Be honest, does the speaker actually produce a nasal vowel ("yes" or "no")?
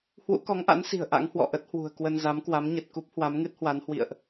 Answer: no